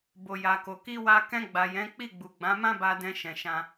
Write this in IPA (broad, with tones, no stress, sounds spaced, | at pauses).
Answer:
b o˨ j a˨ k o˨ k i˧ w a˧ k ɛ̃˧ ɡ͡b a˨ j ɛ̃˨˦ k͡p i˦˨ ɡ͡b u˨ ɡ͡b ã˨˦ m ã˦ b a˧ d ɛ̃˧ ʃ ɛ̃˨ ʃ ã˧